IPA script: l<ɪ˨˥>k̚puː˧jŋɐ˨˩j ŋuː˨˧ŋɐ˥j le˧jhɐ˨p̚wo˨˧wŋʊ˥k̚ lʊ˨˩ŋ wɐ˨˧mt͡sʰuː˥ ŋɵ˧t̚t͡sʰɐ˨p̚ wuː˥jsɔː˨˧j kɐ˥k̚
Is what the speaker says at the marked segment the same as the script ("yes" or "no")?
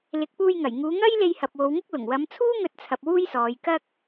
yes